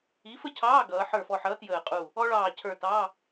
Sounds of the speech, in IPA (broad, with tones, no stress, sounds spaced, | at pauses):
i˨˥ f ə˥ cʰ ɑː˧˥˧ ɡ ʌː˩˧ ħ ə˞˧˩ f ɔ˧˩ ħ ʌː˨˥ t j əː˧˩ qʼ u˧˩ | ɔ˥ ɭ ɑː˧˩ cʰ ə˞˧˩ t ɑ˧˥˧